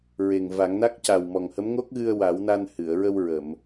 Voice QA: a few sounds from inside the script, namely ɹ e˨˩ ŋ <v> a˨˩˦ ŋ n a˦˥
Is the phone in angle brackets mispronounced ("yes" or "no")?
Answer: no